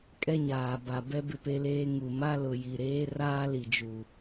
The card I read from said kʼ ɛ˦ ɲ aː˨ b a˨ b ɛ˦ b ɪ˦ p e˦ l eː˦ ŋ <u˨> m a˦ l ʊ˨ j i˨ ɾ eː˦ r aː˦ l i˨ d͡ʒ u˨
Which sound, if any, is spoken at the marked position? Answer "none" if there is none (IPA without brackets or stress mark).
u˨